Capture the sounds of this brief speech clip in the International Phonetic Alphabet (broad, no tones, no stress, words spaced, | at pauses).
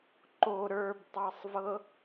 ǃo ɾə˞btˤɑsˤvɤ